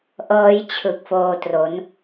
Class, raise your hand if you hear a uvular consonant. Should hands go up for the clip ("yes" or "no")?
no